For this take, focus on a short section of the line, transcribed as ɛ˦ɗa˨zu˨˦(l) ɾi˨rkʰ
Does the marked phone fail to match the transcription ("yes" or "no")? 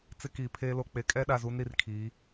yes